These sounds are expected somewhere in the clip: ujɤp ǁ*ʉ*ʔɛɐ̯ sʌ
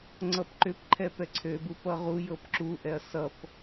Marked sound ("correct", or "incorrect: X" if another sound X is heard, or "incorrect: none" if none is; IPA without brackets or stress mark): incorrect: u